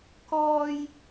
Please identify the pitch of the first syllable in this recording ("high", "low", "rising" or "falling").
high